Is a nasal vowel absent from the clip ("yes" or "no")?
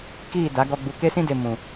no